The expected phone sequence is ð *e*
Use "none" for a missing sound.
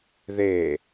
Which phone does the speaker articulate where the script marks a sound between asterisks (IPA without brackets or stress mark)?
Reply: e